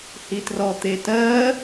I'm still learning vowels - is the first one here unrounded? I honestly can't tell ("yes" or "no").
yes